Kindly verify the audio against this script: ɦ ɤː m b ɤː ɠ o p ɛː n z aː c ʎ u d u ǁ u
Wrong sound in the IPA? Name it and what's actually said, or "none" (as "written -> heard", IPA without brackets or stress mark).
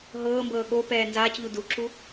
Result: none